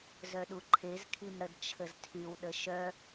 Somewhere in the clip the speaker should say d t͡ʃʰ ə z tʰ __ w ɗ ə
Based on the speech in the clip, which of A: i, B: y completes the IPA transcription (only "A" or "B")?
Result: B